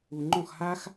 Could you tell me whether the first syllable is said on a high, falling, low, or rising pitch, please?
low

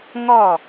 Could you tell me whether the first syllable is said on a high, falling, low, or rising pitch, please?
falling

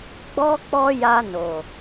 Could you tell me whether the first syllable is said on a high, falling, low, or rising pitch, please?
high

